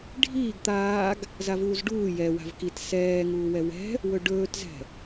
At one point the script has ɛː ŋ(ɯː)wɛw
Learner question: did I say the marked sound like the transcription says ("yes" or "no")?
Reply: no